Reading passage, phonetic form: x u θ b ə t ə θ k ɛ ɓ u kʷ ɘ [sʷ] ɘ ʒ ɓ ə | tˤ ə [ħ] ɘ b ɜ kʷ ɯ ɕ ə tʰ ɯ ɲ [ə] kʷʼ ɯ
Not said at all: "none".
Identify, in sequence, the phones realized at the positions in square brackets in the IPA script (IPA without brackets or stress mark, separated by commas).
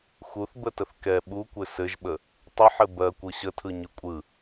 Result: s, ħ, ɯ